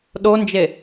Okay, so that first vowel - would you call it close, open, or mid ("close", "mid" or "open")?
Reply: mid